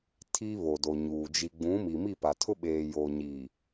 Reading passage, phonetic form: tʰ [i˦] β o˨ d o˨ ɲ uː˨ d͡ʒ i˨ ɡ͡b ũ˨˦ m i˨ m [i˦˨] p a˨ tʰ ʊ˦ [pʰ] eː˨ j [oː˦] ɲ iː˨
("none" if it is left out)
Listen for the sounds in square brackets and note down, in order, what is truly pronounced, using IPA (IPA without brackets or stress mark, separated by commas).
i˦, i˦˨, ɓ, oː˨